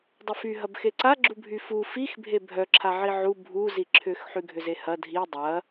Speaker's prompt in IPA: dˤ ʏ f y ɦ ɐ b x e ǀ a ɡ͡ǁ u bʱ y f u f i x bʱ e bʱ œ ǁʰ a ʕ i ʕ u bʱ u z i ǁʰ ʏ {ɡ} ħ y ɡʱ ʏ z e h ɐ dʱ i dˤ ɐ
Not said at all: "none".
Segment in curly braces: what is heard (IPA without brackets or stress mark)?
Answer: x